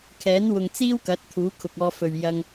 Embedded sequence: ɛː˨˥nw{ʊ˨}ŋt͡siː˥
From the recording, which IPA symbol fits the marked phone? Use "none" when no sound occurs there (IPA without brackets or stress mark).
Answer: ʊ˨